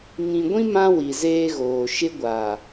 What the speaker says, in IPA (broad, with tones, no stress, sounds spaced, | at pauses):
ŋ ĩ˨ ɡʷ ĩ˦ m ã˦ w i˨ z eː˦ ɣ oː˨ ʃ ɪ˦ ɡʷ a˨